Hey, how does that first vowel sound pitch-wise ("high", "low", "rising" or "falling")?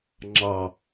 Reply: low